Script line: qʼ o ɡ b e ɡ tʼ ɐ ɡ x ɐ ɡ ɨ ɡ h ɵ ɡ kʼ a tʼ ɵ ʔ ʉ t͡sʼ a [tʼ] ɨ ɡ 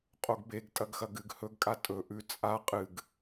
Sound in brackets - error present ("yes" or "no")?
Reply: yes